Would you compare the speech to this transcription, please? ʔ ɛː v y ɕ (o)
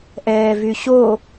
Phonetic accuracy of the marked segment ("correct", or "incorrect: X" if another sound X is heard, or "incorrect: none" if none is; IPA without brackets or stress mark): correct